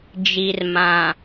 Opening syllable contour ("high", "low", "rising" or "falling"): low